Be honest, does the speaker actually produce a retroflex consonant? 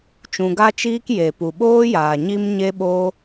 no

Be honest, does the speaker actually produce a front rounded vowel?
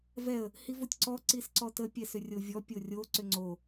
yes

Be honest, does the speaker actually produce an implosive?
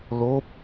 no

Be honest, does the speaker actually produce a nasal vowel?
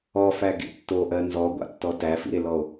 no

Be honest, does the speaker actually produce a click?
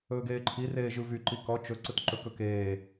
yes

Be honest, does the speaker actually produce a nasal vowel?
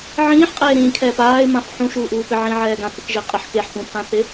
yes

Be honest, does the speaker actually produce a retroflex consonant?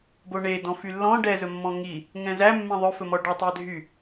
yes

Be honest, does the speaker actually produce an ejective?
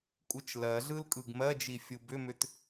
yes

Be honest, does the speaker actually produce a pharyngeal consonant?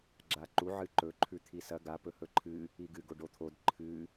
yes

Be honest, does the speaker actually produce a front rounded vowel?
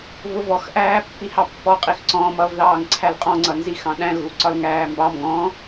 no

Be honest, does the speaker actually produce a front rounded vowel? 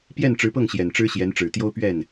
no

